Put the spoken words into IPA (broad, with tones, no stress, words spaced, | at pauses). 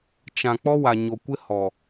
t͡ʃã˨ k͡pɔ˦wa˨ɲo˨kʷɪ˦ hɔ˨